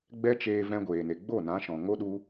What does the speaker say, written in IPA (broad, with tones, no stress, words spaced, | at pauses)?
ɡ͡bɛ˦ t͡ʃeː˧vɛ̃˧ ɡʷeː˨ne˨ ɡ͡bo˦˨nã˨˦ʃɔ̃˨ŋo˦ ɗu˦